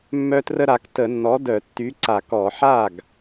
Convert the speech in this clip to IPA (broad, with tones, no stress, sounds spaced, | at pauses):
mː œ˦ t r ə˦ ɾ a˨˥ k t ə˧˩˧ nː ɔ˨˥ d œ˧˩˧ tː y˨˥ ǀ a˧˩˧ k ɔ˧˩˧ ħ a˥˩ ɡ